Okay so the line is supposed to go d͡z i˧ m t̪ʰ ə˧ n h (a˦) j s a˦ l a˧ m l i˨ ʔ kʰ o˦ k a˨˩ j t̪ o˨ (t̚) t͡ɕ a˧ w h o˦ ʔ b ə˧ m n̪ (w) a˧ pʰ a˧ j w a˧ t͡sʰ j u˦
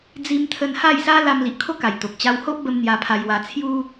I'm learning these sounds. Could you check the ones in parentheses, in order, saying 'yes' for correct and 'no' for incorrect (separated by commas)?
no, no, no